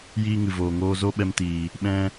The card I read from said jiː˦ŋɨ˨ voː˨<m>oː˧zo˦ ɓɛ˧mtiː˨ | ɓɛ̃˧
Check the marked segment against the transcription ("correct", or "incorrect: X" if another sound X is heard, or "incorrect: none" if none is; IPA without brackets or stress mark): incorrect: ŋ